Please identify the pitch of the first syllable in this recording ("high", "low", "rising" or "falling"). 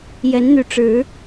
rising